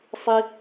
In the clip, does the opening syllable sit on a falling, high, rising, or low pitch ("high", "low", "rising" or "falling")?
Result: high